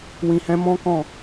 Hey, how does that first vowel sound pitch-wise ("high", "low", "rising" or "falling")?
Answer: low